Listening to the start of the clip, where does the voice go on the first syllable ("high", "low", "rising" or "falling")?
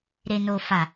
low